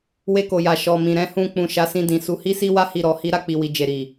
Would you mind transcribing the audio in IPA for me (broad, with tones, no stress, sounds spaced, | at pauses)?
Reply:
w e˧ k o˨ j a˨ ʃ ɔ˨ m ĩ˨ ɾ ɛ̃˨˦ h ũ˧ k͡p ũ˨ ʃ a˨˦ s ĩ˧ d ĩ˨ s u˨˦ h i˦ s i˦ w a˦ h i˦˨ ɾ ɔ˧ h i˦ ɾ a˦˨ k͡p i˨ w i˨ d͡ʒ e˨ ɾ i˨